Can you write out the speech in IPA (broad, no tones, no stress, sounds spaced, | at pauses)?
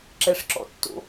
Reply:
ǁ ɛ ʂ ǁ ɔ̰ tː o̰